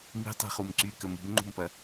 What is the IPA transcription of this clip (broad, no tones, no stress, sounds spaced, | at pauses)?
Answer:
m i̤ tˤ i̤ χ u m ǀ y k ə m ṳ m ŋ͡ǃ ṳ m p ɐ